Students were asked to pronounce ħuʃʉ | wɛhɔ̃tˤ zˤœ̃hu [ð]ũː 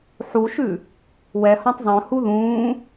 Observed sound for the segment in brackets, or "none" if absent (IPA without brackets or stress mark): ð